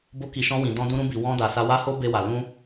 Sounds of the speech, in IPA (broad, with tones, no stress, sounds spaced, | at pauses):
b o˧ k i˨ ʃ ɔ̃˧ w ĩ˨ d ɔ̃˧ d ũ˧ ɾ ũ˧ b i˨ w ɔ̃˧ d a˨ s a˧ w a˦ h o˦ b e˧ w a˨ l ũ˧